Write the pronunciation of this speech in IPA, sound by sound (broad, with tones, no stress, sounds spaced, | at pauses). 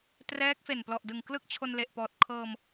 t r ɛː˦˥ k̚ f e˨˩ n p l ɔ˨˩ ʔ d ɯ˨˩ ŋ k l ɯ˥˩ k̚ t͡ɕʰ o˧ n l e˨˩ ʔ p ɔː˨˩ t̚ kʰ ɤː˧ m